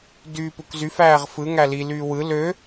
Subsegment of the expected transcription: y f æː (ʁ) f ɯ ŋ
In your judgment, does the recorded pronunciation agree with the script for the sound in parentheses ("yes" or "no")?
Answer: yes